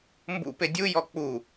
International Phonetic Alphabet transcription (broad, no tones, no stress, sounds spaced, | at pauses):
m b ṵ p e dʲ u j ɔ k͡p u